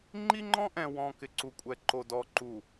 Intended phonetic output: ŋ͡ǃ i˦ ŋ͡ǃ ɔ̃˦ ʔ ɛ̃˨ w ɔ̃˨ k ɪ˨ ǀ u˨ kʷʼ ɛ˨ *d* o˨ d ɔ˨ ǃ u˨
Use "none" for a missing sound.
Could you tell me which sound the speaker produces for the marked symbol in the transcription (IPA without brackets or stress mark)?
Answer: ǃ